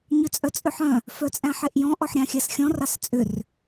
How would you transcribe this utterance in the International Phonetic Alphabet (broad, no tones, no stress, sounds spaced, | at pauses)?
ɲ ʏ t͡sʼ œ t͡sʼ ʏ ħ œ̃ | f œ t͡sʼ æ̃ ħ e ʔ j ɔ̃ ʔ ɔ ħ ɾʲ ɑ̃ xʲ æ s xʲ ɔ̃ r ɑ s t͡sʼ ʏ r